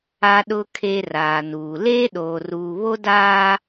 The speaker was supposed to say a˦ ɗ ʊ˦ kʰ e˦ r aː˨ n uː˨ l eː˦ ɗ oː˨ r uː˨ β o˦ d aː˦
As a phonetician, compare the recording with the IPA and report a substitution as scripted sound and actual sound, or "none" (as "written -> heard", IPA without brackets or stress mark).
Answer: none